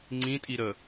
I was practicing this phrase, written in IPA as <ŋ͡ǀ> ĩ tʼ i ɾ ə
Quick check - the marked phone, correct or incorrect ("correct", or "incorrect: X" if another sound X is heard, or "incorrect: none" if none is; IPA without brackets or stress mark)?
correct